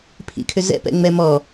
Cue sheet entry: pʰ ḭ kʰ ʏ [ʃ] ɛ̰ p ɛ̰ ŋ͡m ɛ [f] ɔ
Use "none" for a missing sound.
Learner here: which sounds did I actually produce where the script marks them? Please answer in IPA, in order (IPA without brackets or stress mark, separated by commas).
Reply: z, m